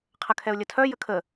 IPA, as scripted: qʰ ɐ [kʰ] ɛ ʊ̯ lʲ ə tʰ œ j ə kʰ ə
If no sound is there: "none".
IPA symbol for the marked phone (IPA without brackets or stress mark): kʰ